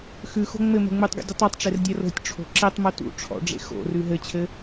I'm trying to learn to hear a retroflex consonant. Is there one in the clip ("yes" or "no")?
yes